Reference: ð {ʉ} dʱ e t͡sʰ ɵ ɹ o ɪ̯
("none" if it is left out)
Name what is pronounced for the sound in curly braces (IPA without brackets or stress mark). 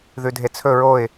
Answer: ʉ